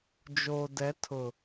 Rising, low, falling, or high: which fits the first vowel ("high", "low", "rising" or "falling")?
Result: low